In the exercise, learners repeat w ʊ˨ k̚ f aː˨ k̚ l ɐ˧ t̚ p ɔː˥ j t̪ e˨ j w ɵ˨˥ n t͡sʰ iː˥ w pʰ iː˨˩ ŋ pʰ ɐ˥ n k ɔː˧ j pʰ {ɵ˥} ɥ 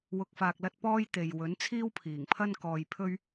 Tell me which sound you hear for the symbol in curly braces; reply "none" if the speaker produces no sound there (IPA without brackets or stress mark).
ɵ˥